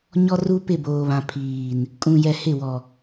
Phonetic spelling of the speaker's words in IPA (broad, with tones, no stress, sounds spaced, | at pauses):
ɲ ɔ˦ r u˦ p ɪ˦˨ b oː˨ β ã˨ pʰ iː˨ n | kʼ ũ˨ j ɛ˨ h ɪ˦˨ w ɔ˨